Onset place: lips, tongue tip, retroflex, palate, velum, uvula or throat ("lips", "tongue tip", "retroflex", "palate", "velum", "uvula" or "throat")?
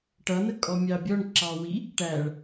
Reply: retroflex